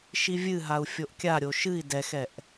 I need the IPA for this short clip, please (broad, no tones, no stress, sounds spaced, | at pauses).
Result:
ʃ i vʲ ɨ ɦ a u̯ fʲ o ʔ kʲ a ɾʲ o ʃ ɨ i̯ d ɛ x ɛ ʔ